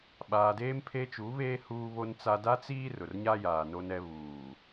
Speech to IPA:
ɓ aː˨ d eː˦ m pʰ e˦ t͡ʃ u˨˦ β eː˦ h uː˦ β o˦ n t͡s a˦ d a˦ t͡s iː˦ r ʊ˨ r ɲ a˦ j aː˨ n o˦ n ɛ˦ β uː˨

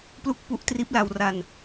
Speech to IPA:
p l u˥˩ k̚ p u˦˥ ʔ t r iː˦˥ p̚ l a˧ w r a˧ n

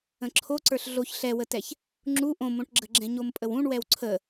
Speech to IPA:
ə̃ ǁʰ o ǀ ə˞ ɬ ɮ o ç ɬ ɛ w ə t ɛ ç | ŋ͡ǁ u ʔ õ m õ ʈ ɡ͡ǁ ə ɡ͡ǁ ɛ̃ ɲ o m pʼ ə w ũ ɳ w ɛ w ǀʰ ə

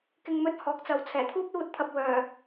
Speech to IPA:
k ɪ˧ ŋ m ɵ˧ t̚ h ɔː˨ k̚ t͡s ɐ˨ w t͡sʰ ɛː˨˩ t̪ʰ uː˥ p̚ l uː˧ t̚ t̪ʰ ɐ˨ p̚ w œː˨˩

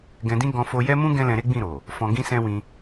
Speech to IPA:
ɡ ɛ̃˧ d ĩ˦ ɡ ɔ̃˧ f o˧ j ɛ˦ m ũ˦ ɡ ɛ̃˦ l ɛ̃˧ ɾ e˦ ɡ͡b ĩ˦˨ ɾ o˨ | f ɔ̃˧ ɡ ĩ˦ s ɛ̃˦ w ĩ˧

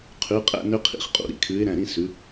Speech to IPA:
qʰ ʉ˨˦ qʼ æ̰˥˧ n ø˥ qʰ ḭ˥˧ χ qʼ ṵ˥˧ ɾ ḭ˩˧˩ kʰ ʉː˨˦ ɪ̯ ɾ æ̃˩˧˩ ɾ ĩ˥˧ s ʉ˨˦

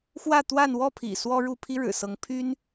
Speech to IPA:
x w ä˥˧ t̪ w a˥˧ n w ɔ˥˩ pʰ ḭ˨˩ s w ɔ˥ ɻ u˥˩ pʰ i˥ ɻ ɻ̩˨˩ s ɤ˧˥ ŋ pʰ y˥ n

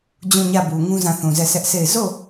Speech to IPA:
d͡ʑ ũ˦˨ ɲ ä˦˨ b u˨ ŋ ũ˦ z ã˦˨ θ ũ˨ z ɛ˦˨ s ɛ˦ ʔ s e˦˨ ɪ̯ z o˦˨

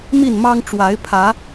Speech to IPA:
m i˥˨ n m ɑ˦ ŋ ʈ͡ʂ w a˨˦ ɪ̯ pʰ ä˨˦

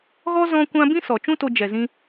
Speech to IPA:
ɣ ɔ˦ z ɔ̃˦ kʷ ã˦ b ĩ˦ s ɔ˨ t͡ʃ ũ˦ t o˧ d͡ʒ ɛ˨ z ĩ˧

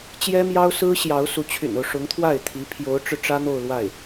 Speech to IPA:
t͡ɕ j ɛ˥ m j ɑ˥ ʊ̯ s ɹ̩˥ ɕ j ɑ˧˥ ʊ̯ s u˧˥ t͡ɕʰ y̰˨˩ n o˦ ʊ̯ ʂ ʊ˧˥ ŋ t̪ʰ w a˥˩ ɪ̯ t̪ʰ i˧˥ pʰ j o˧˥ ʊ̯ ʈ͡ʂ ɻ̩˧ ʈ͡ʂ ä˥ n̪ o˥˧ ʊ̯ l w a˥˩ ɪ̯

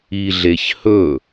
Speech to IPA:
i ɮ e ç h ɵ

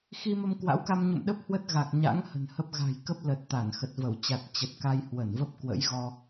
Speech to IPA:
x i˧ m ə˧ m k w a̰˧˥ w k a˧ m ɲ ṵ˧˨ m ɗ ə˦˥ p̚ h w ə˦˥ t̚ ɣ a˨˩ k̚ ɲ a̰˧˥ ŋ h ə̤˨˩ n h ə˦˥ p̚ ɣ a̤˨˩ j k ə˦˥ p̚ l ə˨˩ t̚ t̪ a˧˩ n x ə˨˩ t̚ v ə˧˩ w t͡ɕ a˨˩ t̚ t͡ɕ ə˨˩ t̚ k a˧ j h w ə˧˩ n v ə˦˥ p̚ k w ə̰˧˥ j ɣ ɔ˧

